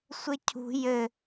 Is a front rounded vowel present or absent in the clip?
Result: absent